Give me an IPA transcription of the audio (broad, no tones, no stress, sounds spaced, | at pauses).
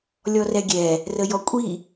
lʲ ɔ r ɛ ɡʲ ɛ | r ə j ɔ kʷʼ i